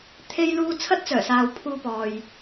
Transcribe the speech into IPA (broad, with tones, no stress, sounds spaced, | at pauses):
t̪ʰ e˥ j l uː˥ t͡sʰ ɐ˥ t̚ t͡s œː˨˩ s aː˨ w pʰ uː˧ p ɔː˨ j